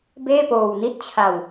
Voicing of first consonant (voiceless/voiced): voiced